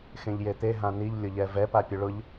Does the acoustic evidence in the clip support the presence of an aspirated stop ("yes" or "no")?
no